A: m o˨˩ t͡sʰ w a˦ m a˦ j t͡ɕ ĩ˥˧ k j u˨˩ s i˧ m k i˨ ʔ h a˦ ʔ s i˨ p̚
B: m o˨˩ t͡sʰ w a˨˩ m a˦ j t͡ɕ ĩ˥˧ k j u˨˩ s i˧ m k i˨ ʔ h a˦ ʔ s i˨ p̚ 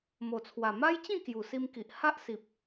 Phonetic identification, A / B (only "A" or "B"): B